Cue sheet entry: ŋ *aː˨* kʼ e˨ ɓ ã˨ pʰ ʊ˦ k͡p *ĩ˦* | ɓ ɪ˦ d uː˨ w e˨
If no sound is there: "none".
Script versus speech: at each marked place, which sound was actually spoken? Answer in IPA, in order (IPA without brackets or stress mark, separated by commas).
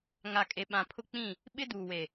a˨, ĩ˦˨